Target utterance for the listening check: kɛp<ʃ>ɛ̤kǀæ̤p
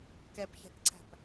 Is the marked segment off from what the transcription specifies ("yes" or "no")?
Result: yes